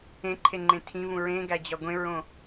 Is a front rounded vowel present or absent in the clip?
absent